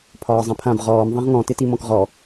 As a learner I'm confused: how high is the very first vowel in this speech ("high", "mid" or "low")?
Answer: low